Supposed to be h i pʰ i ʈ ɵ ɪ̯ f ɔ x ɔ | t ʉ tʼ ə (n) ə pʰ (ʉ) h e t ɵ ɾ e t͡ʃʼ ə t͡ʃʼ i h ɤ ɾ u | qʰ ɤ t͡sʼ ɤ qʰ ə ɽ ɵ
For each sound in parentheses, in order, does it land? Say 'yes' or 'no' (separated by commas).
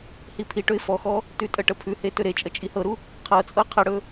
no, yes